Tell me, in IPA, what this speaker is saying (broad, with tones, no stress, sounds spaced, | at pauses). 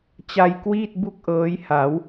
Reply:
t͡ɕ a˧ j k w iː˥˩ t̚ b u˥˩ k̚ ʔ ɤː˦˥ j h a˩˦ w